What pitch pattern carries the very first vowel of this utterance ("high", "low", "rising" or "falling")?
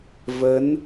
rising